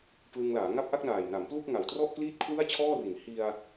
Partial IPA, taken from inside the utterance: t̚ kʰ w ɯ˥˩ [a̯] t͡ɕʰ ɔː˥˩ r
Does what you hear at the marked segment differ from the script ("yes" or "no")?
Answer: no